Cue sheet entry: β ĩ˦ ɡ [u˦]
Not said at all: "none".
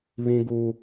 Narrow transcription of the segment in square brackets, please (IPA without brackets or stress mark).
u˦